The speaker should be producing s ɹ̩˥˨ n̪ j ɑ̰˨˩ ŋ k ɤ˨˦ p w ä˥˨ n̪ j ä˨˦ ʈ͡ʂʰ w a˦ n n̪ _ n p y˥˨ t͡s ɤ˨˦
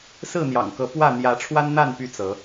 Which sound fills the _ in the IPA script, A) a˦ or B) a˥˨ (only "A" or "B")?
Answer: B